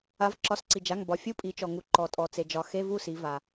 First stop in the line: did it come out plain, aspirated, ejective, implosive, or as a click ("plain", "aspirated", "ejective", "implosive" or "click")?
click